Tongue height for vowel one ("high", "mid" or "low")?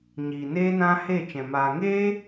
high